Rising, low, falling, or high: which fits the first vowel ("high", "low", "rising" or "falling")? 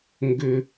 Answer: high